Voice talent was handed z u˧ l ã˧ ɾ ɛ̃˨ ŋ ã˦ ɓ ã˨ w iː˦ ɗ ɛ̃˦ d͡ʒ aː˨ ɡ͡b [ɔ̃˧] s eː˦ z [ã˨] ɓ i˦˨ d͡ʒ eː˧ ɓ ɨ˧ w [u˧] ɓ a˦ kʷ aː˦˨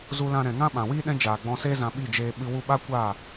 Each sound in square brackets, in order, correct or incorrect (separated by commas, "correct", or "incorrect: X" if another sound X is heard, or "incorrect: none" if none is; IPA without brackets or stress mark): correct, incorrect: ã˧, correct